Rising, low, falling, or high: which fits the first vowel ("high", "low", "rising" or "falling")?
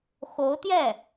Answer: rising